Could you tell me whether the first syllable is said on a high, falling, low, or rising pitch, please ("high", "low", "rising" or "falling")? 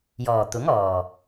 low